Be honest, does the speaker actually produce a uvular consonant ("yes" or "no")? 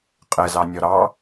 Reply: yes